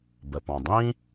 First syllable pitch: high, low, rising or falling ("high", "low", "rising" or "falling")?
low